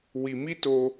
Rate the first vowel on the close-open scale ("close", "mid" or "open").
close